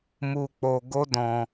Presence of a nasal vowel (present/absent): present